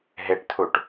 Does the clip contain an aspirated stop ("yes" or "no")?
yes